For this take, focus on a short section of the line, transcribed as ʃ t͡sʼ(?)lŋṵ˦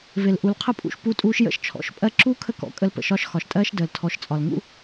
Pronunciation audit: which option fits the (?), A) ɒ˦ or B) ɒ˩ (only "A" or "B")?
B